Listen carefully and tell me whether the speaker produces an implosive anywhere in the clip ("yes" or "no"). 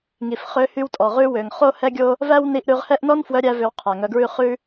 no